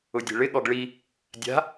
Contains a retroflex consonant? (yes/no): yes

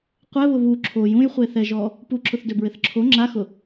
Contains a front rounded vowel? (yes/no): yes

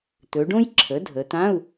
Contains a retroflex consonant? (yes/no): yes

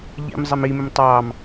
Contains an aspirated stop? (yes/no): no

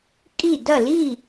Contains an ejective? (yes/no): yes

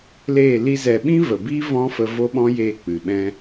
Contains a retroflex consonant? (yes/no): no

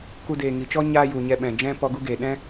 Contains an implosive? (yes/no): yes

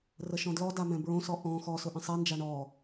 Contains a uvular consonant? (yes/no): no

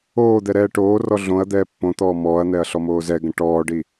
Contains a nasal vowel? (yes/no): yes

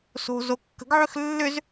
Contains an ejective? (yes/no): no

